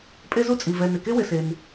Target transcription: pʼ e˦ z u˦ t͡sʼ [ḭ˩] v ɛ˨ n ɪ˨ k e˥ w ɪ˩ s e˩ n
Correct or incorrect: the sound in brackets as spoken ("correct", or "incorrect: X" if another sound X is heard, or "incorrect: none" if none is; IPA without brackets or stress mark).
incorrect: i˩